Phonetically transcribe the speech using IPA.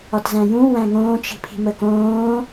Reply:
ɒtzæ̃jũ wæ̃ŋõːt͡ʃi̤pʰi̤ məkõː

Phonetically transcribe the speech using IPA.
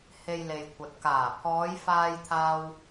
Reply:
he˧jle˨jkʷʰɐ˨t̚ kaː˨˩ pʰɔː˨˧jfaː˧jt̪ʰaː˧w

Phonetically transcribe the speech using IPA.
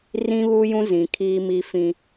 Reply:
rĩ˦βu˦jũ˦ zĩ˨kʰiː˦mi˦fĩ˦

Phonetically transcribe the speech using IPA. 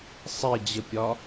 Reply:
sˤed͡ʑəpʲɒ

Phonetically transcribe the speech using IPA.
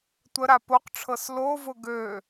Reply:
tʷəɾa poqʈ͡ʂʰɤs lovʊ ɡø

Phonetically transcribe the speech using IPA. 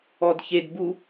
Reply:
ɔdçed bu

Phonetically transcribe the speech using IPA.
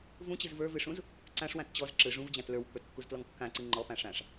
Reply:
vũt͡ɕɨz və˞vɨʂũz | ǀãʂwãt t͡ɕɔz ǁɯ ʐũvd͡ʑãt lə˞wpːə˞tkːuztlɔŋ kːãǀɨ ŋ͡ǃɔpã ʂãʂ

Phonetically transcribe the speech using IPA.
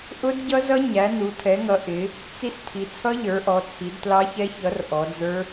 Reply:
ʔʊ˦˥dɟʌ˦˥zʌ˦˥ ɲæ˨˦nu˨˦ tʰɛ˨˦ŋʌ˨˦ ʔɪ˨˦ | t͡si˦˥stʰi˨˦ t͡sʰʌ˦˥ʎə˞˨˦ ʔɔ˨˦ t͡sʰi˨˦dtlɑ˦˥çɛ˦˥ çʌ˨˦r ʔɔ˨˦d͡zə˞˦˥

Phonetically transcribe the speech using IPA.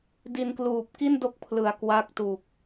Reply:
di˧nkluː˨˩p̚ ki˥˩ndo˦˥k̚ pʰlɯ˨˩a̯ kwa˦˥k̚tu˨˩k̚

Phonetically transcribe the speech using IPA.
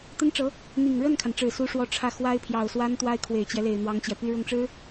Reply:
t̪ə˥nʈ͡ʂɤ˧˥ | n̪i˨˩ŋ ɻə˥˩nkʰa˩nʈ͡ʂɻ̩˨˩ su˥ʂwɔ˥ ʈ͡ʂʰä˥˩ xwa˥ɪ̯pʰjɑ˨˩ʊ̯swa˥n t̪wa˥ɪ̯kʰwe˨˩ɪ̯t͡ɕjɛ˦le˨˩ɪ̯ n̪wɑ˥ŋt͡ɕjɛ˨ py˥˧ɻʊ˥˩ŋʈ͡ʂɻ̩˥

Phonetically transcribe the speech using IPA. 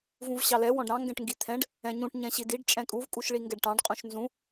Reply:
vũvɕɑlɛ wɔ̃ɖɾɑ̃ ŋɡɛ̃ʈŋɡit̪ʰɛ̃ɖ | ɛ̃ɲũʈ ɲɛ̃ɕidiɖ t͡ʃʼɛ̃kʼuv kʼuʃɭiŋɡɛɖʈɑ̃ɖ qʼũʃnzũ

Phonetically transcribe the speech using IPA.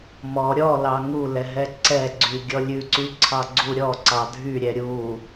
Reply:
mɔ ɾʲɔ lɑŋulɛ ɦɛǀɛɡ͡ǀy ɡʲɔlʲʉǀy ǀʰɑɡ͡ǀuɾʲɔǀɑ dʱyɾʲɛ ɾʲu

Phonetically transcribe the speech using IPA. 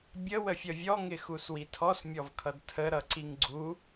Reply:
bʲə wəfʲʌvʲɔ ŋɪxuswitʰɔs mʲɔvkʰʌdtʰə ɾʌǀiŋɡ͡ǀu

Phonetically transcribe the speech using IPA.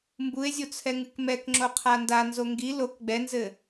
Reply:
mbue̯zʲot͡sʰɛŋɨk mɛkŋ͡ǁoqʰa ndanzo ŋɡi lok ɡ͡bɛnzɘ

